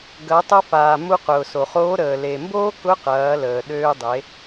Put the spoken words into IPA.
ɡ ɐ˩˧ tˤ ɐ˧ f aː˩ m u˧ q ʊː˩ s o˩ χ oː˧˥ ɾ əː˩ l e˩ m b oː˥ k ʊ˧˥ q ɐː˩˧ l əː˩ ɗ øː˧ dˤ e˩˧

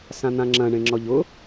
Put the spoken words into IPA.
s ã n̪ ã ŋ͡ǁ ɐ̃ ɳ ẽ ŋ͡ǁ ɔ ʎ ʊ

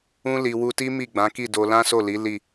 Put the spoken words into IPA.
ũ˦ l i˧ w u˧ t i˦ m i˦˨ ɡ͡b ã˨˦ k i˦˨ d o˧ l ã˦ s o˦˨ l i˨˦ l i˦˨

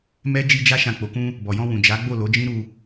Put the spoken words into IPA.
m ɛ˦ d͡ʒ i˦ d͡ʒ a˦ ʃ ã˧ k͡p o˨ k ũ˧ | b ɔ˨ j ɔ̃˧ w ũ˨ d͡ʒ a˨˦ ɡ͡b o˦˨ l o˨˦ d͡ʒ ĩ˦ ɾ u˧

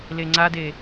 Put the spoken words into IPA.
l e ŋ͡ǀ a d e

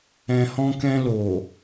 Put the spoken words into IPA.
ɛ̃˨ h ɔ̃˧ k ɛ̃˧ l o˨

